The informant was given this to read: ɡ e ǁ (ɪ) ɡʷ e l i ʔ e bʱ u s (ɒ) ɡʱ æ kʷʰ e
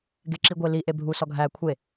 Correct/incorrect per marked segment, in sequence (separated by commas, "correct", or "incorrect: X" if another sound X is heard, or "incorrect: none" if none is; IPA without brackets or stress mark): incorrect: i, correct